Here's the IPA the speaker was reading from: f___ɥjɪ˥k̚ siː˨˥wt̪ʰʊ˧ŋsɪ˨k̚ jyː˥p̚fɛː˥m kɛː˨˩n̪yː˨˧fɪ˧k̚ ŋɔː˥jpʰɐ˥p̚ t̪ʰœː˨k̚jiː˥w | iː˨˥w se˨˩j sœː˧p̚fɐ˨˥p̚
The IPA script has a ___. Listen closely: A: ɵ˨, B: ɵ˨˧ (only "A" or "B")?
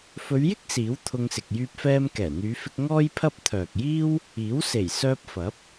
B